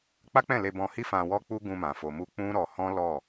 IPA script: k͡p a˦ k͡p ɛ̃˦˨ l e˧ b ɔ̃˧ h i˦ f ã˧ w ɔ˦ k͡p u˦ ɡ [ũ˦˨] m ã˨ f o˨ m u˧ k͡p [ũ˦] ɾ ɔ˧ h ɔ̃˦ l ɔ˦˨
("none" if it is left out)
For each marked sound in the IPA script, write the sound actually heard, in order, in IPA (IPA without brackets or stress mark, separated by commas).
ũ˧, ũ˦